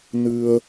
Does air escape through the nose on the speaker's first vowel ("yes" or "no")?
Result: no